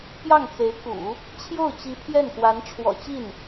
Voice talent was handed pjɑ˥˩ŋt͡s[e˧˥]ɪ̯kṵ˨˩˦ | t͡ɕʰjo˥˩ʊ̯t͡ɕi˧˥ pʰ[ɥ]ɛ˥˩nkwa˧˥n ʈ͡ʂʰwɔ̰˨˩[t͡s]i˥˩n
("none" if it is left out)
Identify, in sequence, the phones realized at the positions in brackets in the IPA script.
e˧˥, j, t͡ɕ

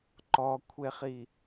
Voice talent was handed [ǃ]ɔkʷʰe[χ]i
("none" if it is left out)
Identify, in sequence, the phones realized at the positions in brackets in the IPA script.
ǃ, χ

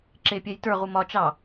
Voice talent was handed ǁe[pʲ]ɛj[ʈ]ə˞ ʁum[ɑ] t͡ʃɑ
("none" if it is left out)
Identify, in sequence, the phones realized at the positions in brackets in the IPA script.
pʲ, t, ɒ

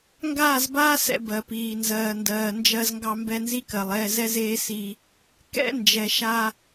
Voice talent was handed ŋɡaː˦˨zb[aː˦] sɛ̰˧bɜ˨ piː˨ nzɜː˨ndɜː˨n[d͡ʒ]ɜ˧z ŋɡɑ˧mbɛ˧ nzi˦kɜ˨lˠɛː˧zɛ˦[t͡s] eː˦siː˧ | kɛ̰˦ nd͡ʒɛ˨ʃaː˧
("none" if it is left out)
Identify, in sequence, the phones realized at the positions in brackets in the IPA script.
aː˦, d͡ʒ, z

